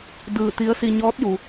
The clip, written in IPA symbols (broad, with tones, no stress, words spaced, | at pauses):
dɯː˧˩t̪i˧˥ə̯si˧ ɲɔː˧˥t̚ ju˩